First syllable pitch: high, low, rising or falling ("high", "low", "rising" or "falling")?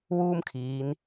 high